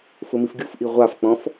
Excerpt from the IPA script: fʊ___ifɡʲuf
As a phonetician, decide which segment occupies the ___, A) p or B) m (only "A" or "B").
B